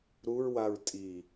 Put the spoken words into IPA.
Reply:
ɾ u ɹ w a ɹ tʼ i

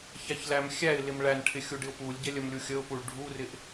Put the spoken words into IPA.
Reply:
ç æ ç l æ m xʲ æ ɪ̯ l ɪ m ɭ æ n ʈʰ ɪ xʲ u ɖ ɪ ʊ̯ p u lʲ ɟ ɛ lʲ ə m lʲ u xʲ ə ʊ̯ p u ɭ ɖʱ u r ɪ ʔ

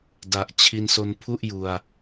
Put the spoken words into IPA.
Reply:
d a˨˩ ʔ t͡ɕʰ i˧ n s o˧ n pʰ u˥˩ ʔ j u˧ a̯

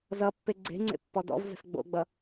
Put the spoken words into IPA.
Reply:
z ʌ pː e ɡ͡ǀ e̤ ŋ͡ǀ ḛ pː ɔ d ɔ̰ v z ə̤ s ɡ͡b o̰ ɡ͡b ʌ

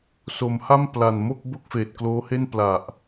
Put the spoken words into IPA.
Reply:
s o˩˦ m h a˥˩ m p l a˨˩ n m o˥˩ k̚ b o˥˩ k̚ f eː˨˩ t̚ k l oː˦˥ h e˥˩ n p l a˨˩ ʔ

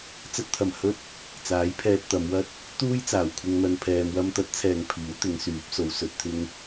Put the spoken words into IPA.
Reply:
t͡s ɐ˧ t̚ t̪ʰ ɐ˨˩ m h ɵ˥ t̚ | t͡s aː˨˥ j pʰ ɛː˧ t̚ t̪ ɐ˨˧ m w ɐ˥ t̚ | t̪ uː˥ j t͡s aː˨˩ w kʷʰ ɪ˧ ŋ n̪ ɐ˧ n pʰ ɛː˧ m w ɐ˥ m t̪ ɐ˨˥ t̚ t͡sʰ ɛː˨ ŋ pʰ iː˨˥ w t̪ ɪ˨˧ ŋ s yː˨˥ p̚ s o˨˧ w s ɵ˧ t̚ t̪ʰ ɪ˥ ŋ

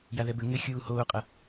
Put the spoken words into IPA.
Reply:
j a ð ɛ b ɘ ŋ ɘ xʲ uː h oː qʼ ɐ

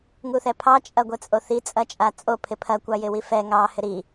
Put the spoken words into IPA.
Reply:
ŋ u θ ɛ pʰ ɑ t͡ʃʼ ɐ ɡʷ ɛ t͡sʼ o θ i t͡sʼ ɐ t͡ʃʼ a t͡sʼ o pʰ ɪ pʰ ɐ kʷ ɑ j ɪ w i f ɛ ŋ ɑ h ɪ ɾ i

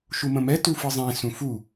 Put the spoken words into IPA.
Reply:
ʃ u m ə̃ m ɛ t u f ɯ zˤ ẽ s ũ f u

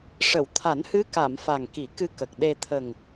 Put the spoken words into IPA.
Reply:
ʂ ə˨˩˨ w t̪ʰ a˨˩˦ n h ɨ˧˥ k a˨˩˨ m f a˨˩ ŋ k i˨˩˦ k ɨ˧ k ə˨˩ k̚ ɗ e˧ t̪ʰ ə˨˩ ŋ

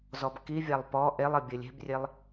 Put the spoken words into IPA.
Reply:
z ɔ b k i vʲ a lˠ p ɔ ʔ e lˠ ɘ bʲ ɘ lʲ e̤ b rʲ e lˠ

